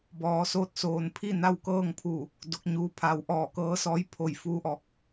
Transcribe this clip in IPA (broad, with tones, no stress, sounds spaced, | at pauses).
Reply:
b ɔː˩˧ s oː˥˨ t̚ s oː˧˩ n pʰ i˥˨ n a˥˨ w k ɤː˥˨ ŋ pʰ uː˧˩ | d o˧˥ k̚ ɲ uː˧˥ pʰ a˧˥ w ʔ ɔː˥˨ k ɤː˧˥ s ɔː˧˥ j pʰ o˧˩ j f uː˧˥ ʔ ɔː˧˩ k̚